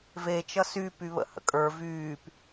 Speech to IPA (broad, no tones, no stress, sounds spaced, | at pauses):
v e t͡ʃ ʌ s y p y β ə̰ h ə̰ kʼ ə˞ v yː p